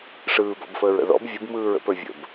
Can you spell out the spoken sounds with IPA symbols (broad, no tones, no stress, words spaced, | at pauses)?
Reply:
ʂɯːbɔ̰bfəːɹə̰ ðɔ̰b vʲɯbmɯːɹ ə̰pə˞ vʲə̰b